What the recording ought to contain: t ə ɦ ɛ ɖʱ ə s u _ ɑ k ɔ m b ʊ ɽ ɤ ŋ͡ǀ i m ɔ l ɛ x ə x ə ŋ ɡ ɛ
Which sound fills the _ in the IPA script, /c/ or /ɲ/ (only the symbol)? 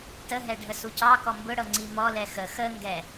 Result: c